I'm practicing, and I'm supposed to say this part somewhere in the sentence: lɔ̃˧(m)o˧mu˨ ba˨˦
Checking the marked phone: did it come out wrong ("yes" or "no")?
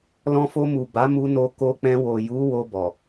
yes